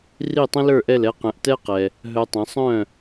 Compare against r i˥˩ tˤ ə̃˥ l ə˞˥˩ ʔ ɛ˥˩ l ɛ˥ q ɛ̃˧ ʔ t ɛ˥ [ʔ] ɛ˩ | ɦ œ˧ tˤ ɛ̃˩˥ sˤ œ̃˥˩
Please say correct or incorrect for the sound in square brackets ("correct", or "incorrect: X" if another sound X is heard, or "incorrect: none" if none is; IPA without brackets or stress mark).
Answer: incorrect: q